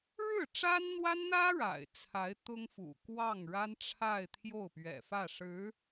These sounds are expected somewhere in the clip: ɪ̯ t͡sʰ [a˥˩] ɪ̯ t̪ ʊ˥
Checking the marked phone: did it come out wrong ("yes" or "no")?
yes